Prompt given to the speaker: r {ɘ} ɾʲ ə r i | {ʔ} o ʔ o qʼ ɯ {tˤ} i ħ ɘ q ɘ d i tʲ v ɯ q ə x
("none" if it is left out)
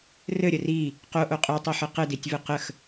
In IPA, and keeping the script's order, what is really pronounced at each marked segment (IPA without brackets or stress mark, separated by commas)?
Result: ɘ, q, tˤ